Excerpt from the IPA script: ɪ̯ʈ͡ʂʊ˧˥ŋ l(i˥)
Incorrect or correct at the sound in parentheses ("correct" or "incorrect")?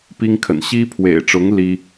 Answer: correct